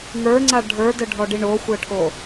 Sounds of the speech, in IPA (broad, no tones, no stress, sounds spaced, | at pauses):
ŋ ə˞ ŋ͡ǀ a ɖʱ ə˞ d ə ɖʱ ɔ ɖ i ɳ o xʷ ə ʈʰ o